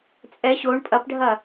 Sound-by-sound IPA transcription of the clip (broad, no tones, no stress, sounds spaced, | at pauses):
t͡sʼ ɛ ɕ o ɳ pʼ ɐ p ɖʱ ɐ